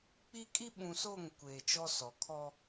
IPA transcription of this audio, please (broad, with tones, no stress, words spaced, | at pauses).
k͡pi˦ kʼi˦ɓũ˨so˦˨ŋ kʷeː˨t͡ʃɔ˦sɔ˨ kʰɔ˦